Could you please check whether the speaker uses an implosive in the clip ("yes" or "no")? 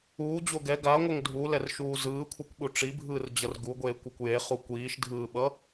yes